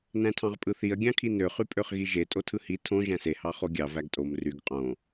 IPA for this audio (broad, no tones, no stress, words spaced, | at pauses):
næ̃tʰɑ̃ʁpʼɯθiɐ̯ ɡʲɑ̃kʰinø χypʼøχɣiʒe tʼotʰɯhi tʰõ ʒæ̃se hɑχoɡʲɑ væɡtʼom ryɡ qʼõ